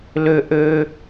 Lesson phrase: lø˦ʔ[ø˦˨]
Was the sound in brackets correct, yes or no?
no